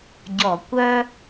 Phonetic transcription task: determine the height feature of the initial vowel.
mid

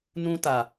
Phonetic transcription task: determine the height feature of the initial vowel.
high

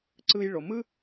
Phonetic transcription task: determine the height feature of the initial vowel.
high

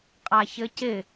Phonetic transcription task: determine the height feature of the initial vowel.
low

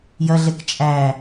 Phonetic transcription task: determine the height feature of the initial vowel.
low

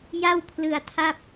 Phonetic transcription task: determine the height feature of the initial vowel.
low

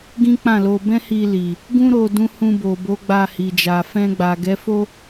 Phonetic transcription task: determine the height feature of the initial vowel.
high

